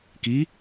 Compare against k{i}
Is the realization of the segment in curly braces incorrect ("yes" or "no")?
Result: no